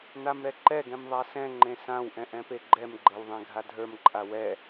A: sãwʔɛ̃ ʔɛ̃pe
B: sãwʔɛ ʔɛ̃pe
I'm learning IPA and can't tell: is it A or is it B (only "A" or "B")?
A